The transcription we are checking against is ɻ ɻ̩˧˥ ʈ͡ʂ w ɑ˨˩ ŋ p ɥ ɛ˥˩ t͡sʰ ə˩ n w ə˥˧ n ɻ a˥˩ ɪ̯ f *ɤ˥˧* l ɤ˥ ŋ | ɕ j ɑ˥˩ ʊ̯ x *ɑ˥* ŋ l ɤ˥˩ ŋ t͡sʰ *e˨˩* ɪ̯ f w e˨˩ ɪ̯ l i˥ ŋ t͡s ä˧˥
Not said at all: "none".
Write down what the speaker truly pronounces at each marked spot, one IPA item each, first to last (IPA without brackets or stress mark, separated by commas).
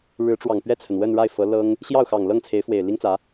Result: ɤ˧˥, ɑ˨˩, e˧˥